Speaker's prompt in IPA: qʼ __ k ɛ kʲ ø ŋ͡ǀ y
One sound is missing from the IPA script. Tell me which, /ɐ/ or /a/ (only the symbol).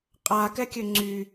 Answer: a